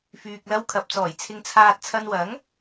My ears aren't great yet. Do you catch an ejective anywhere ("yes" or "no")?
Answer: no